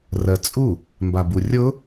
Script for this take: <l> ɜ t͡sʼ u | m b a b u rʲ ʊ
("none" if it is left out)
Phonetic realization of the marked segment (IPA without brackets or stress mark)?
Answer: r